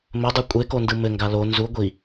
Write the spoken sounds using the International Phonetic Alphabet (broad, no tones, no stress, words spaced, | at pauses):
mɘdˤʉ kʷʼekondɯ mɘŋɡa lo nzu ɡʷi